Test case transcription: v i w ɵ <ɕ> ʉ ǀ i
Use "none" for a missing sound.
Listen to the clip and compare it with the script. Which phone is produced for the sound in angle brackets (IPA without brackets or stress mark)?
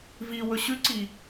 ɕ